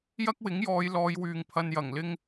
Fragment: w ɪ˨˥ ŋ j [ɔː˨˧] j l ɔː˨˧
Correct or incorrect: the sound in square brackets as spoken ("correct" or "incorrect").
correct